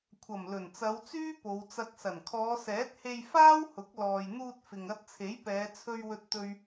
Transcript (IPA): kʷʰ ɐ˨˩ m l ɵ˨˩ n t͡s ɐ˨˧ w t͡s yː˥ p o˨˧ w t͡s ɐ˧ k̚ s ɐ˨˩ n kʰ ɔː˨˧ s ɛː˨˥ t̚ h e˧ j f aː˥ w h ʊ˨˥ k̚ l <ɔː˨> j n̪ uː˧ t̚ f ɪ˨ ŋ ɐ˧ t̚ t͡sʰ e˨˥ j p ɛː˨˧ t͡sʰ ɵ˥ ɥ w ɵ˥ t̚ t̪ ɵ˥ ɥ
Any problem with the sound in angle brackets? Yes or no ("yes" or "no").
no